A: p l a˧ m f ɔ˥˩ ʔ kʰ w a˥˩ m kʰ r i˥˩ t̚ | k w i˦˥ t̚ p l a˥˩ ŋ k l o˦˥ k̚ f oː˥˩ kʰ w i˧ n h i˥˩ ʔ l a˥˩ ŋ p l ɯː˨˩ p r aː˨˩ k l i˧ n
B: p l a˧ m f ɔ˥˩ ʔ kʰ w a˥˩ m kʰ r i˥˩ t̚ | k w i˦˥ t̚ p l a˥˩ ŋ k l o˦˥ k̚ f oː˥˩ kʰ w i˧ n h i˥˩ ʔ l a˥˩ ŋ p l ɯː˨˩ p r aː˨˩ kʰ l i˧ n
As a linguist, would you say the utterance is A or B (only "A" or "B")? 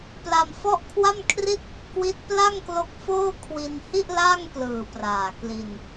A